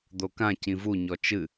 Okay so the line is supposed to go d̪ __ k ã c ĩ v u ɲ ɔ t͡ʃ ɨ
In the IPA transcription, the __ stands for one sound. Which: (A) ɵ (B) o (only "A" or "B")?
B